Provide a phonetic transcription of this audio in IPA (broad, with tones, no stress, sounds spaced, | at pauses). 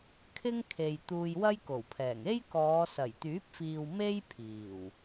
kʰ ɪ˥ ŋ kʰ e˨ j t̪ uː˧ j w ɐ˥ j k o˨˩ w pʰ ɛː˨˩ ŋ e˥ j k ɔː˨˧ s ɐ˨˩ j t̪ yː˨˥ p̚ f iː˨ w m e˥ j pʰ iː˨˩ w